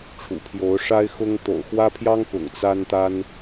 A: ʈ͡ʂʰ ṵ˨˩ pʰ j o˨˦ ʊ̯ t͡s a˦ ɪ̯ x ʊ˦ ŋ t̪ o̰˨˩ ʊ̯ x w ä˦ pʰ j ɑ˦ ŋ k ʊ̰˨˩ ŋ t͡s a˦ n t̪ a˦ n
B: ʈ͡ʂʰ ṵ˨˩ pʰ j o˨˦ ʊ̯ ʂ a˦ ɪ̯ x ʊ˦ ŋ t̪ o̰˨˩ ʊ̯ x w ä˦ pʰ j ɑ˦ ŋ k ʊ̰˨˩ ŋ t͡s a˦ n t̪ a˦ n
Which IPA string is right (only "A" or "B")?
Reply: B